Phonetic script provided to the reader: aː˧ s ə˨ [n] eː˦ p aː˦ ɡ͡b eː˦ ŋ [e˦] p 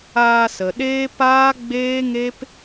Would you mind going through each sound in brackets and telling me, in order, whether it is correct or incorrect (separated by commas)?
incorrect, correct